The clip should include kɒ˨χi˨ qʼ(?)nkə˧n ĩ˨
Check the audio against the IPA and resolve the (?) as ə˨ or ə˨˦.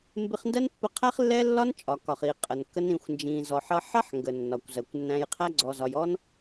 ə˨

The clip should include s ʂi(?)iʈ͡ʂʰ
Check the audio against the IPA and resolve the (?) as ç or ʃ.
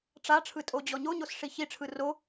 ç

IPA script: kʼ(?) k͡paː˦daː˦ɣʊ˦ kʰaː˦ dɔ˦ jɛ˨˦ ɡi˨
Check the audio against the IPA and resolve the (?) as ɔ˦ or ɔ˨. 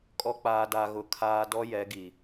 ɔ˦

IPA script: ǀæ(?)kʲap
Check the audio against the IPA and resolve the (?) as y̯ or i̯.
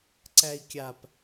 i̯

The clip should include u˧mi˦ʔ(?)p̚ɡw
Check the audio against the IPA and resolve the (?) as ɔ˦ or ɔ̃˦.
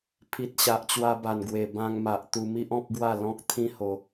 ɔ̃˦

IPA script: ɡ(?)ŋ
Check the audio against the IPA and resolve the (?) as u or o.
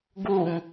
u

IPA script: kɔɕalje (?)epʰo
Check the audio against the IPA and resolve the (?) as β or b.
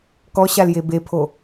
b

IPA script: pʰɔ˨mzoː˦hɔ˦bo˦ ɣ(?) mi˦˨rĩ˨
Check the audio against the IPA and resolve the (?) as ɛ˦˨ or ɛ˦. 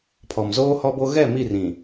ɛ˦˨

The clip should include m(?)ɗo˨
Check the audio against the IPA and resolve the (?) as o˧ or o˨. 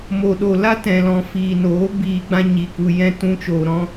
o˨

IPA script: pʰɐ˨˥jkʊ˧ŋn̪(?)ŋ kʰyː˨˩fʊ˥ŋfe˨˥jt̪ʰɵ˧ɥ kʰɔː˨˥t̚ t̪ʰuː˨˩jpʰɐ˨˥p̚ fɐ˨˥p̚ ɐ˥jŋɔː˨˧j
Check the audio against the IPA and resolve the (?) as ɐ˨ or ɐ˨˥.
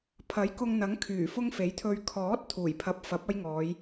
ɐ˨˥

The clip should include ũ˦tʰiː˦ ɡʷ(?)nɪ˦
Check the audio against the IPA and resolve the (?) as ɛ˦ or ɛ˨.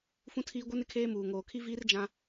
ɛ˦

